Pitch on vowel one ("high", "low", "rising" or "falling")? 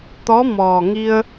rising